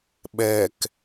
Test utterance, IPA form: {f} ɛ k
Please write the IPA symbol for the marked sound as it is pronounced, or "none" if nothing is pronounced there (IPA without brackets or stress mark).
ɓ